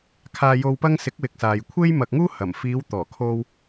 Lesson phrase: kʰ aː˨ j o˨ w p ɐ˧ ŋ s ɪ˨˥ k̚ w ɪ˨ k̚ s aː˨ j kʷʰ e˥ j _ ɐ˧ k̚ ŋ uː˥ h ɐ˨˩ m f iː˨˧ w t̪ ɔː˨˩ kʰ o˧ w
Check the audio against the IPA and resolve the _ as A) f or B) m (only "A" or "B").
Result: B